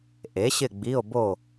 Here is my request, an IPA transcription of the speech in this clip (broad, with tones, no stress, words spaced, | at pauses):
ʔe˩˥ɕɪ˥˨ ɡ͡bi˧˥˧o̯bo˥˨